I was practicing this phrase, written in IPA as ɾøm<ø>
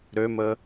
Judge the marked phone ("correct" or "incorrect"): incorrect